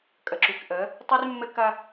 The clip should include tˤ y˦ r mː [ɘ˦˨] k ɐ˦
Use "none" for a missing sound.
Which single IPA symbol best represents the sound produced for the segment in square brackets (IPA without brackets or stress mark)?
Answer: ɘ˦